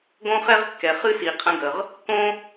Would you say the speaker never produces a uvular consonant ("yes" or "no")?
no